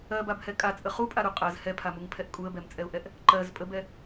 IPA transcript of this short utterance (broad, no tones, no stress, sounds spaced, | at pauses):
ɜ b a b h ɛ kʼ a t͡sʼ ə χ u pʼ a ɾ u qʼ ɜ z h ɛ pʰ a m u ŋ pʰ ɛ ʔ kʼ u ə̯ b ɛ m t͡sʼ ɛ ʊ̯ ʔ ɛ ʔ | ǃ ɜ z pʼ ə b ɛ